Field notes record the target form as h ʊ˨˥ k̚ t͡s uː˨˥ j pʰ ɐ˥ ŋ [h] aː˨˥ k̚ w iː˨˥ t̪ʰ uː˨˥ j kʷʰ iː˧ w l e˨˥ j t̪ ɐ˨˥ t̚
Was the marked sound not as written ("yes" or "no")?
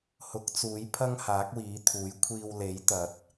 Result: no